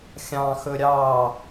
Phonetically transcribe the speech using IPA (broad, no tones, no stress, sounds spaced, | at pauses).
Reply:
xʲ ɑ̃ x ɵ ɾʲ ɑ